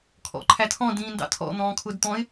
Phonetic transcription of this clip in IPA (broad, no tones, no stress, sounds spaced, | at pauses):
kʰ ɔ̰ ǃʰ æ tʰ ɔ̃ d ĩː n d ɑ̰ tʰ ɔ̰ n̪ ɔ̃ː kʰ ʊː d t̪ ɔ̃ ɪ̯